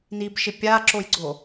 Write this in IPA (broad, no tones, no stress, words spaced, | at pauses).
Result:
nibʃɪ pʲaǁojɡ͡ǀo